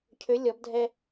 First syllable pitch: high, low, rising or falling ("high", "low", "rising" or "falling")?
rising